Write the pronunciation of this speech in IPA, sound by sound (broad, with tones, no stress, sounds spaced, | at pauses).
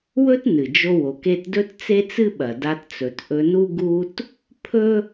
w ɵ˥ t n ɨ˩ d͡ʒ o˧ w o˩ k e˧ t d ɵ˥ t t͡s e˥ t͡s ɨ˥ ɓ ɐ˩ d a˧ t t͡s ɵ˩ t ʔ ɵ˧ n u˥ ɡ u˥ t | pʰ ɵ˥